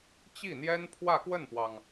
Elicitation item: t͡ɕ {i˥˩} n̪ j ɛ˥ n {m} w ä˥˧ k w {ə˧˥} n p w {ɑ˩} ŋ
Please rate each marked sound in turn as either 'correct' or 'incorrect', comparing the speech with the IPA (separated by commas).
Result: correct, incorrect, incorrect, correct